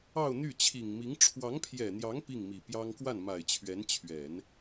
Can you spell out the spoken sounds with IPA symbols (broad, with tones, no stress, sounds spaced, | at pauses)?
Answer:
ɑ˥˧ ʊ̯ n̪ y˥˩ t͡ɕʰ i˨˩ ŋ m i˧˥ ŋ ʈ͡ʂʰ w ɑ˧˥ ŋ pʰ j ɛ˨˩ n̪ j ɑ˧˥ ŋ p i˥˩ ŋ m i˨˩ p j ɑ˥ ŋ k w a˥˩ n m a˨˩ ɪ̯ t͡ɕʰ ɥ ɛ˧˥ n t͡ɕʰ ɥ ɛ˨˩˦ n